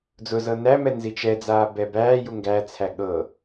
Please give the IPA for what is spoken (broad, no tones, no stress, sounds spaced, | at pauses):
d͡z ʊ z ɤ n æ m ɛ n z i t͡ʃ ɛ d͡z aː b ɛ b æː j u ŋ ɡ æ t͡sʰ æ ɠ ɤ